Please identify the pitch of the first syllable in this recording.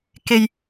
low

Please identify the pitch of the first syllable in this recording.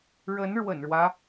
rising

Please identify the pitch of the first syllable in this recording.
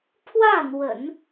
falling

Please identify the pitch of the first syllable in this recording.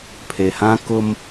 low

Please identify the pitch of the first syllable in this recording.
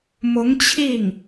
rising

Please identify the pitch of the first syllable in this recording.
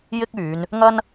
high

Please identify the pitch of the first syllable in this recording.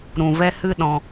low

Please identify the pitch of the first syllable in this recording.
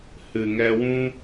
low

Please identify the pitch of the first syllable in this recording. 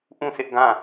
falling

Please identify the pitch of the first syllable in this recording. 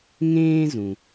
high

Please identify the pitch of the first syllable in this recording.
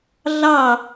falling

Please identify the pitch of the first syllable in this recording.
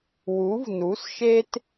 rising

